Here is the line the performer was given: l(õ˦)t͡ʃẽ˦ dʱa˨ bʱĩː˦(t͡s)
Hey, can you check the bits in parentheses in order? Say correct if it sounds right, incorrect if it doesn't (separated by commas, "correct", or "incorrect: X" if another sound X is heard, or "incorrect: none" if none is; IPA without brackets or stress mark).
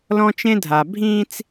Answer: incorrect: ɔ̃˦, correct